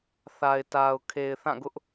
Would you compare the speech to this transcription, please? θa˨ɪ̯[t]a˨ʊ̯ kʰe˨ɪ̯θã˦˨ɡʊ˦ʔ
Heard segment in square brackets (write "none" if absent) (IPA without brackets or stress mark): t